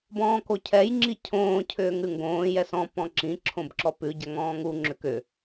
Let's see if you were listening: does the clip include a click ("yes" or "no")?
yes